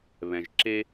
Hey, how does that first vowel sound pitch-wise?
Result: low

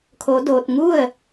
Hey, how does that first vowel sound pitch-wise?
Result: rising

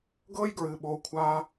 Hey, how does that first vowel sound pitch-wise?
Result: high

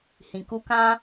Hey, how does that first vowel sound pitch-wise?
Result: low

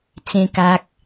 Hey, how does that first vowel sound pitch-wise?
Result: high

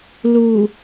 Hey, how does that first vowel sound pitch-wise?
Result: low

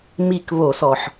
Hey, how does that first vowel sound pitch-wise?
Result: falling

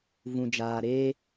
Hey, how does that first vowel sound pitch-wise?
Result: low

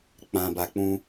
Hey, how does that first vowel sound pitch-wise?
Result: low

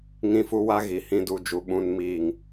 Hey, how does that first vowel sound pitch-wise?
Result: high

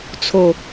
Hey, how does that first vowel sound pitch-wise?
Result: low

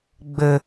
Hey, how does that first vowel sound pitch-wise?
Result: low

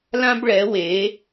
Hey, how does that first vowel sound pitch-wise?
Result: high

